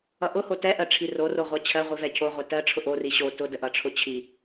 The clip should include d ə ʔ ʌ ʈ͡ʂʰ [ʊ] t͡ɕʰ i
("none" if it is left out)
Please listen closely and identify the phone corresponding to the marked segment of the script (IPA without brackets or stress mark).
ʊ